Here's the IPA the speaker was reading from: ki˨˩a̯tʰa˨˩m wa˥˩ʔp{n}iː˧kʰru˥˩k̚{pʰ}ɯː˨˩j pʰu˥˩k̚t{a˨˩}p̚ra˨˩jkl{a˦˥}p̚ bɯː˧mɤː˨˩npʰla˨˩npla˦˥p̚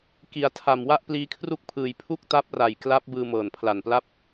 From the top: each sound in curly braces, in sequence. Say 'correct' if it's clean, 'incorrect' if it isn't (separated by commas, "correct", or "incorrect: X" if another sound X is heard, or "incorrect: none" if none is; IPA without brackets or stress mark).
incorrect: l, correct, incorrect: a˦˥, correct